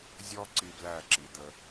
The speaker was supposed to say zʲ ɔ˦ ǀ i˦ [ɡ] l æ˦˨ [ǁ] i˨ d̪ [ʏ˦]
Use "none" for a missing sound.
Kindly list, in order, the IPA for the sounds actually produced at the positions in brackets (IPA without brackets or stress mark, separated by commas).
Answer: b, ǁ, ə˦